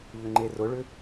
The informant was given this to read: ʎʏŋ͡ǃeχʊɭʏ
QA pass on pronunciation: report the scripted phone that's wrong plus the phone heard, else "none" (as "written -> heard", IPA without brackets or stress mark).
χ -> r